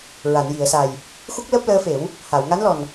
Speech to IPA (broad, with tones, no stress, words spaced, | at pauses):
ɹa˨˩˨nji˨˩˨ə̯sa˨˩j | xu˦˥k̚ləː˦˥p̚ləː˧˥fe˨˩˦w | ha˨˩˨wŋa˧˥nlɔ˨˩n